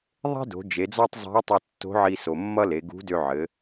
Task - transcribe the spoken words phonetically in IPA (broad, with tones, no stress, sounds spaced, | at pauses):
ðˤ e̤˥ d o̤˩˧ d͡ʒ e˩˧ d͡z ɔ˥ tˤ zˤ e̤˧˥ ʊ̯ tˤ ʌ˧ tː o̤˧˥ ʕ i˧ s o˩ mː ʌ˥ l e˩˧ ɡ ṳ˧˥ d ø˧ ʕ ɘ˩˧